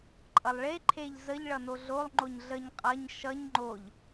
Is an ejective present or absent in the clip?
present